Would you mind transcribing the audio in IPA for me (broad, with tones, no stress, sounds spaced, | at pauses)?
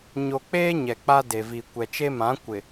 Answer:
ɲ o˨ k͡p eː˦ ɲ ɛ˨ k͡p a˦ d e˨ v i˨ kʷ ɛ˨ t͡ʃ e˦ m ã˨˦ kʷ ɪ˨